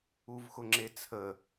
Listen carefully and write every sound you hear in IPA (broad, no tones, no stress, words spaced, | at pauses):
uvxʊŋ͡ǁet͡sʰə